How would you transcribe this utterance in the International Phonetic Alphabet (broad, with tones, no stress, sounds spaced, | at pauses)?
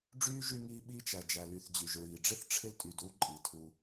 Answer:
ɖ͡ʐ yː˥ ʒ y˦ ŋ iː˦ ɓ iː˥ t͡ʃ æ˨ d͡ʒ æ˨ l y˨ θ d͡ʑ y˩ ʒ ɹ iː˩ ɖ͡ʐ ɪ˥ θ ʈ͡ʂʰ ɪ˦ l tʼ y˨ d u˥ ǃʼ i˩ tʰ u˨